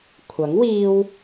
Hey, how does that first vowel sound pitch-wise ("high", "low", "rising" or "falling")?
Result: rising